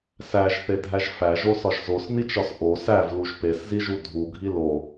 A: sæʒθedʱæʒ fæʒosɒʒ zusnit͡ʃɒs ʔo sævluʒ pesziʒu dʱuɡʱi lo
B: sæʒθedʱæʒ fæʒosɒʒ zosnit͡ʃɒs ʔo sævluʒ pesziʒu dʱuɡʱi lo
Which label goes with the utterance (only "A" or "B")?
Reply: B